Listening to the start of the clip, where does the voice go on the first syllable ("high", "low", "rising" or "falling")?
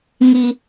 high